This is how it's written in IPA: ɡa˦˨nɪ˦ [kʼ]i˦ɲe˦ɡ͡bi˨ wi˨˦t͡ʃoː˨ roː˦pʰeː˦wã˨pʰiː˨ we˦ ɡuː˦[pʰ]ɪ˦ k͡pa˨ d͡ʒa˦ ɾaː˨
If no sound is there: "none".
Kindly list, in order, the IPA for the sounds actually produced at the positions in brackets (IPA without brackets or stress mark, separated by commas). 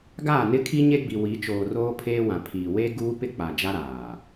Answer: kʰ, p